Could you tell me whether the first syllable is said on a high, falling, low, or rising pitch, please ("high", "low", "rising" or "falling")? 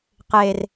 low